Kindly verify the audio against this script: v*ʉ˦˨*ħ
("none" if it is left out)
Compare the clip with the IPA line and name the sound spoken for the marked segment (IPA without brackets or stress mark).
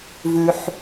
ʉ˩